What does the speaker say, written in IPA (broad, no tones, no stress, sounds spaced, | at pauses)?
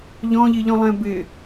ʎ ɔ̃ ʎ i ʎ ɔ̃ lˠ ɛ̃ b ɪ